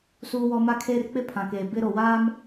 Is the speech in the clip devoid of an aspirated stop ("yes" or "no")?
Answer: no